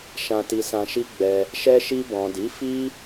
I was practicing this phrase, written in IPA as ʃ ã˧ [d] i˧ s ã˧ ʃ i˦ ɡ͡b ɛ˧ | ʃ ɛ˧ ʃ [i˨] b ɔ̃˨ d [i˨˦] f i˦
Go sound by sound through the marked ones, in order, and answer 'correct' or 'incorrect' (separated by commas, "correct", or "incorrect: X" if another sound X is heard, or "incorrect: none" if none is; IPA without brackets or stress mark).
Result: incorrect: t, incorrect: i˧, correct